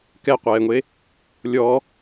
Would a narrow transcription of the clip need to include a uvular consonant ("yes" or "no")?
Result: yes